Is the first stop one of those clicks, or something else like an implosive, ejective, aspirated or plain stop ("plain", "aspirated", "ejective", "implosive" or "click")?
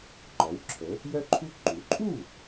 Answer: click